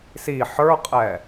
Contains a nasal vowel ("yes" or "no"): no